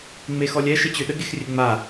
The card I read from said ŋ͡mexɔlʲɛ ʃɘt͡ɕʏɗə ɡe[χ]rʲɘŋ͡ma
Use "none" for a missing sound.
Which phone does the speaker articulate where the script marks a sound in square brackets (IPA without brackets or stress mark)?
x